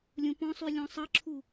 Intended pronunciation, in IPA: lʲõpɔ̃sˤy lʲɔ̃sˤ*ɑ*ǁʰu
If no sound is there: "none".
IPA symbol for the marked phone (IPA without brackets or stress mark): ʌ